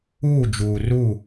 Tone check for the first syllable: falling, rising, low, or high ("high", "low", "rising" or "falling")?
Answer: falling